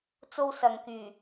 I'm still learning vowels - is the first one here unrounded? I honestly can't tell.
no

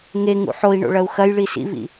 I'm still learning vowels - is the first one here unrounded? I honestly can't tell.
yes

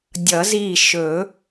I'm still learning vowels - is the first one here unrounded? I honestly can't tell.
yes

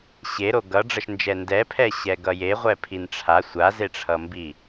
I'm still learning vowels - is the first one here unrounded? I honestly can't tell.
yes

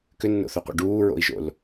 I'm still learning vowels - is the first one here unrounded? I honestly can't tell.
no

